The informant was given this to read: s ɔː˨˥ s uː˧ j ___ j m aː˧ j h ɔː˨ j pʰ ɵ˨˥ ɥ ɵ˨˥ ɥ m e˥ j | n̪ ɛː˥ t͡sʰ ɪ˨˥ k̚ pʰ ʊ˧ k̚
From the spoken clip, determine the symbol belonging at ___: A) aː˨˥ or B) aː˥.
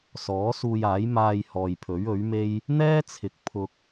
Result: A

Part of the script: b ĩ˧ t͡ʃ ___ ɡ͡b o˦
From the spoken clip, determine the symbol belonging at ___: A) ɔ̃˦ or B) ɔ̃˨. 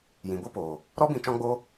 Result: A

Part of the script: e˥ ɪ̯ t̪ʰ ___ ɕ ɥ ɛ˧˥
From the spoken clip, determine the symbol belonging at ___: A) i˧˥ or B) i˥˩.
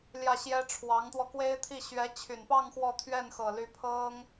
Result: B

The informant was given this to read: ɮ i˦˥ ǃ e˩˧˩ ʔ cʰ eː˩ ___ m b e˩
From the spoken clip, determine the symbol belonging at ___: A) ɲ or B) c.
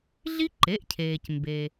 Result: B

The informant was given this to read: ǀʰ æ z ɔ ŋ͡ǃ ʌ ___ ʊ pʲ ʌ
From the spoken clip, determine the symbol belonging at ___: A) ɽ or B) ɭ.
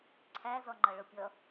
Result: B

